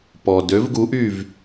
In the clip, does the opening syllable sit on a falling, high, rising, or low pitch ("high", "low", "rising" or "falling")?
low